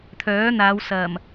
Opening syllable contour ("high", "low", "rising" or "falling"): rising